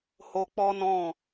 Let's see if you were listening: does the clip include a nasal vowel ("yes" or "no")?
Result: yes